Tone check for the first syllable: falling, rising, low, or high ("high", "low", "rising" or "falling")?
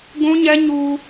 high